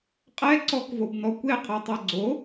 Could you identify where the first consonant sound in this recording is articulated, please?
uvular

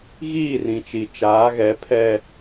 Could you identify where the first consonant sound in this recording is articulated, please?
velar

